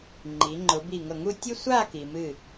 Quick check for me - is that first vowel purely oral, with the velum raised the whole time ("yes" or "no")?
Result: yes